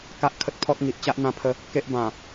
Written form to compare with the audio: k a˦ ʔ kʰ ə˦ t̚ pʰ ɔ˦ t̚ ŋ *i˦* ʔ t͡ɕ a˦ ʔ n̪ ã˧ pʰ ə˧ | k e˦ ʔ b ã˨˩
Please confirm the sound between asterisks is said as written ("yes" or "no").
no